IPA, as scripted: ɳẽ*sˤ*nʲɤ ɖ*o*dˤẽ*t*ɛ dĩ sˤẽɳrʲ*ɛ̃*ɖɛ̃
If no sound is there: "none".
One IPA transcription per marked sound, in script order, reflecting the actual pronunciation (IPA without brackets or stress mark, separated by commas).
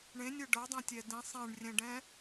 none, ɤ, tʲ, ɛ̃